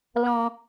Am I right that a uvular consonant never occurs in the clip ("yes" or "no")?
yes